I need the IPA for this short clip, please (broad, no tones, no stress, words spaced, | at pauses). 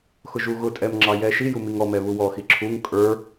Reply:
xʊʒuɣʊtʼɛm ŋ͡ǁɑjɛʃiju miŋɔmɛ βuwɔxi ǁʰuŋ kʼə˞